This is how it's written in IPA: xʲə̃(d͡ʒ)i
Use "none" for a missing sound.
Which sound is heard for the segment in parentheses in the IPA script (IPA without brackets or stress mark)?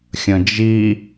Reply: d͡ʒ